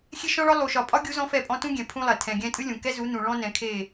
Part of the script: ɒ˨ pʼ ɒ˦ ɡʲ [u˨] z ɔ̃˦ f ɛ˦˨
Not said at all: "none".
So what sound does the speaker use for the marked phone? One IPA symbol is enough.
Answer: u˦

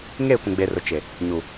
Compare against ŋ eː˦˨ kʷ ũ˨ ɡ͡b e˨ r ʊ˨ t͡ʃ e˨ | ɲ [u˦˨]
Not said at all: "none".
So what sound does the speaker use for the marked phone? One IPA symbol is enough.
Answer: u˨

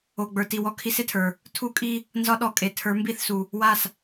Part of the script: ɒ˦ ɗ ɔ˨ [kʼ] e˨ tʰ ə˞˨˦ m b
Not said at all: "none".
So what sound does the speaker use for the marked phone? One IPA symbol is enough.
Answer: kʼ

